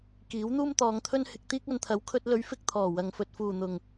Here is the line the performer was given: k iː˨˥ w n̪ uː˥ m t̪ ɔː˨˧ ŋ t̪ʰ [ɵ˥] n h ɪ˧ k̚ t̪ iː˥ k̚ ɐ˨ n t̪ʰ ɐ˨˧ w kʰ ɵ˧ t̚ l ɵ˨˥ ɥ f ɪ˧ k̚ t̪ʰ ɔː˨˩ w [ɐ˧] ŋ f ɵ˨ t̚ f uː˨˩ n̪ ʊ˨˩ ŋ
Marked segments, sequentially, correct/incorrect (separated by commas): correct, incorrect